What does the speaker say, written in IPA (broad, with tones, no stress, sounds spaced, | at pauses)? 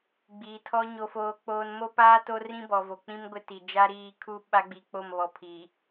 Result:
ɡ͡b iː˨ tʰ ɔ˦ ɲ o˨ f oː˨ k͡p oː˨ n m o˦ p aː˦ t o˦ r ĩ˦ b ɔ˨ v o˨ k͡p ĩ˦ m ɡʷ ɪ˦ t i˨ d͡ʒ a˦ ɾ iː˦ kʰ u˦ ɓ a˦ ɡ͡b i˨ k͡p o˦˨ m β ɔ˨ pʰ iː˨